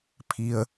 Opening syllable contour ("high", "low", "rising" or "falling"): low